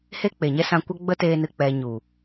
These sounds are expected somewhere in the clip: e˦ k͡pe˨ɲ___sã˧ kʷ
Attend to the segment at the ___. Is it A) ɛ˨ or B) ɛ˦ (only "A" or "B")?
B